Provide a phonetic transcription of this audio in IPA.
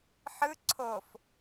ħɯ ǀʰof

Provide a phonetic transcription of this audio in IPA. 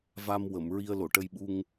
va˧m wə˨˩˨m ɹi˧ə̯lo˨˩˨ʈə˧jɓu˧ŋ

